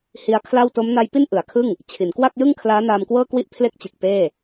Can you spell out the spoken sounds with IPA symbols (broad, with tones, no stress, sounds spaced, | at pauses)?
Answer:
h i˦˥ a̯ kʰ l a˥˩ w t o˦˥ m n a˦˥ j p i˥˩ n ʔ ɯ˩˦ a̯ kʰ ɯ˥˩ ŋ | t͡ɕʰ i˩˦ n k w a˥˩ k̚ j ɯ˥˩ ŋ kʰ l aː˦˥ n aː˧ m k w ɤː˥˩ k w i˥˩ ʔ pʰ l e˥˩ k̚ t͡ɕ ɯ˨˩ k̚ p eː˥˩